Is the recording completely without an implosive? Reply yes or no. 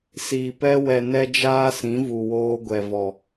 yes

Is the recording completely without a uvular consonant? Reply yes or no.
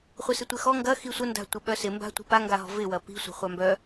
no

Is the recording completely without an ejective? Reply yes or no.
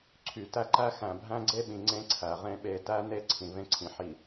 yes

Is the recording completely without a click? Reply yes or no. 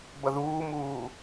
yes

